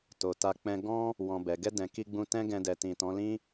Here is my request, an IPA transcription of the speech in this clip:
t o˨ t a˧ k͡p ɛ̃˧ ɡ ɔ̃˦ | w ɔ̃˨ b ɛ˨ ɡ ɛ˧ d ɛ̃˨ k i˧ ɡ͡b ũ˧ t ɛ̃˦ ɡ ɛ̃˧ d ɛ˨ t ĩ˨ t ɔ̃˨˦ l ĩ˦

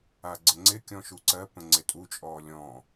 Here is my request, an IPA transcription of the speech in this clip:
a ɡ͡ǀ ə ŋ͡ǀ ɪ kʲ ɔ̃ ʃ u ǀ ɜ p ə̃ ŋ͡ǀ ɪ tʼ u t͡ʃʼ ɔː lʲ ɔ̃

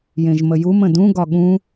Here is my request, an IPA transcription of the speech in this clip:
j ẽ ʒ m ə j u m ə̃ d ũ ɡ ɒ ɠ ũ

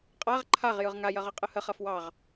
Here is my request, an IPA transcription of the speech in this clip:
qʼ a ʁ ǃʰ a ʁ j ɯ ʁ ŋ a j ɐ ʁ ɯ qʼ ɯ h ə χ ɐ f w ɑ ʁ

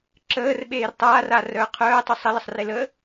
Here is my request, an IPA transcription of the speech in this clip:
ǁ əː r ɓ eː r tˤ aː r a r œː qʰ œː tˤ u sˤ ə l ə sˤ r e l ə

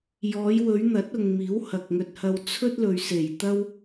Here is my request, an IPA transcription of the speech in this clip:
j ɔː˨˧ j w ɵ˨˧ ɥ n̪ ɐ˨˥ t̚ ʊ˨ ŋ m iː˨˥ w h ɐ˨ k̚ ŋ ɵ˧ t̚ h ɐ˧ w t͡sʰ ɵ˥ t̚ l ɵ˨ ɥ s e˨˩ j t̪ ɐ˥ w

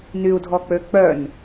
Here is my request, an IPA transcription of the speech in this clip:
n y u̯ dʱ ɔ k͡p ø k͡p œ n

